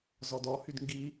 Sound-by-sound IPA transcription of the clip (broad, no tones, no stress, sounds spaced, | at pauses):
z ɔ d ɔ h y d ŋ ɡ i